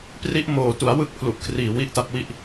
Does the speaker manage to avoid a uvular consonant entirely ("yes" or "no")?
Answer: yes